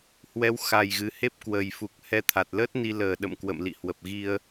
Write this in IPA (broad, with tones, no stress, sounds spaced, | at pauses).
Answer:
h w ɛ˨˦ w x a˨˩ j ɣ ɨ˨˩ h e˦˥ p̚ k w ə˨˩ j f u˨˩ k̚ h ɛ˧ t̪ʰ a˨˩ t̚ l ə˦˥ t̚ n i˧ l əː˨˩ ɗ ə̰˧˨ m k w ə̰˧˨ m l ḭ˧˨ h w ə˨˩ p̚ ɣ i˧ ə̯